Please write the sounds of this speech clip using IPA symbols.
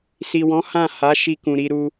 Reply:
si˨wɔ̃˨˦ hã˦˨ha˨˦ ʃi˧kũ˨ɾi˧ɾu˧

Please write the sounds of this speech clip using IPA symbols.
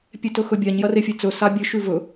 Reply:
pʲetɵxɵbʲaɲ jɐrefʲɨt͡sɵ sabʲɨ ʃʉvɵ

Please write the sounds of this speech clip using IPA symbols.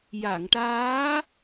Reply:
ja˨˩˨ŋʈaː˧˥

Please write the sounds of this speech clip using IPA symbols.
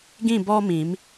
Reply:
ɡĩ˥˧bɔ˦mĩ˨˦m

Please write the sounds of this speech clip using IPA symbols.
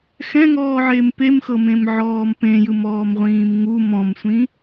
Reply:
xɛ̃ŋɔːʕem pemxɤmẽmʕɔːm pẽjɯmɔːmʁʷĩːm ŋu mɔ̃msʷĩ

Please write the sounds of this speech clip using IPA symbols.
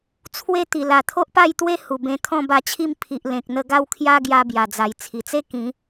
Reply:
t͡sʰwe˥˧t̪i˨˩ la˨˩t̪ʰo˦ʔpa˥˧jt̪we˦ hu˨˩bẽ˧ t̪ʰɔ̃˥˧ba˧t͡ɕʰi˥˧m pʰi˨ʔlẽ˨k̚n̪ə˧ɡa˥˧w kʰja˦ɡja˧ bja˨˩d͡za˨˩j t͡sʰi˨˩t͡se˥˧ kĩ˨˦

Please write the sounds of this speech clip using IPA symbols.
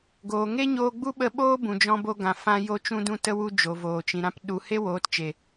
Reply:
ɡoː˨ŋe˦ɲoː˧ ɡ͡bu˦ɓə˧ɓoː˦bũ˨ d͡ʒɔ̃˧bo˧ɡã˨ fã˧ jo˧t͡ʃũ˧dũ˧tə˧ wu˧ d͡ʒo˨voː˨t͡ʃĩ˨ ɾã˦p ɗu˧ he˦woː˨˦tt͡ʃe˨

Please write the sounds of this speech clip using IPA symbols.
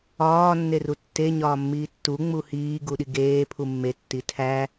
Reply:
ɒː nːerutːe ɲɒːmːiːtːu ŋ͡muhiː ɡuɗiɡeː pʰumːe tːitʰæ

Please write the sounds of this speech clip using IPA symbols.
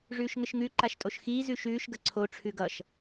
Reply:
ʐʉːʃŋɘʃŋʉ ǃaʃtʼoʃxiː zʉʃʉːʃ ɡəǀʰo ʈ͡ʂʰʉɡʌʃ

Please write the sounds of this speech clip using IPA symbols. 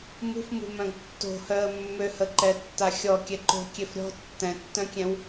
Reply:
mṳfmṳmœ̃ɡ tːo̤hœə̯ mːøhəǃɛtːa xʲɔkʲɛ ǃo̤kʲef ɾʲɔ̤ tːɛ̃tːœ̃kʲɛ̃w

